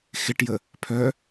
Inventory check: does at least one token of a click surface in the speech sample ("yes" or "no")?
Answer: no